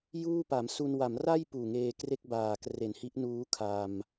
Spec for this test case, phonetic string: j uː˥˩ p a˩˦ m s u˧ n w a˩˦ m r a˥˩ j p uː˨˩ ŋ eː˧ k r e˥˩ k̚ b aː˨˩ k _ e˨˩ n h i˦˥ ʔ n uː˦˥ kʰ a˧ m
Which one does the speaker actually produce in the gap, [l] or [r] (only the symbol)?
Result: r